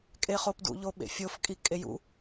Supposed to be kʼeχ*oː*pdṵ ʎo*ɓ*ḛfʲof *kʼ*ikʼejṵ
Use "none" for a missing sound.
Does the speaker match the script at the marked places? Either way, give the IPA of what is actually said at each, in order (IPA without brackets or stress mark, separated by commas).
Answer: o, ɓ, kʼ